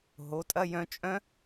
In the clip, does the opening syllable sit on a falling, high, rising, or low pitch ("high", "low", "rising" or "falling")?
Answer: rising